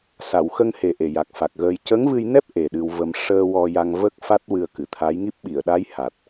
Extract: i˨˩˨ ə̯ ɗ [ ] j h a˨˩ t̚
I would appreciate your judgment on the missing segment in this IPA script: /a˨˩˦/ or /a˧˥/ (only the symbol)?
a˧˥